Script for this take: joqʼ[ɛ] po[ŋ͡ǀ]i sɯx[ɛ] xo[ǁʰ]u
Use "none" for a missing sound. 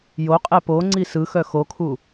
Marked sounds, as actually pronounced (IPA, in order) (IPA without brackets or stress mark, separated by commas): ɛ, ŋ͡ǀ, œ, kʰ